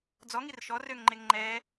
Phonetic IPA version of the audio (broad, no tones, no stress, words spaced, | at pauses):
d͡zɔŋir ʃɔrøŋŋ͡ǃeŋ ŋ͡ǃɛ